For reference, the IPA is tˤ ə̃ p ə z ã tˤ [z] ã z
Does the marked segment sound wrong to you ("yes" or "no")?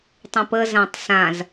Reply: yes